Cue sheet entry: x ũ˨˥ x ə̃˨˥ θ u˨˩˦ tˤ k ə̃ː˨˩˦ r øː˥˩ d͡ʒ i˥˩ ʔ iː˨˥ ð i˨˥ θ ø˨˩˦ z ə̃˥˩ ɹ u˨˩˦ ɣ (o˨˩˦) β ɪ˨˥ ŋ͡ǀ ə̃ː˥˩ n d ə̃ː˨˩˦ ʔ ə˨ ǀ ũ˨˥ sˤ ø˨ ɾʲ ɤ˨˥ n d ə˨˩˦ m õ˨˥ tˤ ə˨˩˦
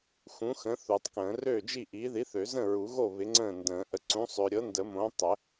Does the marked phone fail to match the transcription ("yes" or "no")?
yes